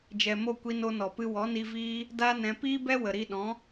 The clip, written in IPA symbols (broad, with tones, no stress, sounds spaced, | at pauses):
d͡ʒ ɛ˨ m o˦˨ kʷ i˧ n o˧ n ɔ˨ p ɨ˧ w ɔ˨˦ n i˧ v iː˦ | d a˦ n ɛ̃˧ p iː˦ b ɛ˦ w ə˨ ɾ i˧ ɗ ɔ̃˨˦